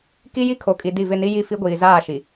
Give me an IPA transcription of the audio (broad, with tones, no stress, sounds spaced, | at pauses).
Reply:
k i˦ j i˦ kʰ o˨ kʼ i˨ d i˦˨ v ɪ˦˨ n i˦ j i˦˨ f i˦ ɡʷ iː˨ z aː˦˨ ʃ i˨